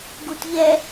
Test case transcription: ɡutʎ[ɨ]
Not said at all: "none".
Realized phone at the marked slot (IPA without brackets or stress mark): ɛ